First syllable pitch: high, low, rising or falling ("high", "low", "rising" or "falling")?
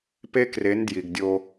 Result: high